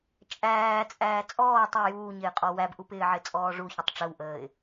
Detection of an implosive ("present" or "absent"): absent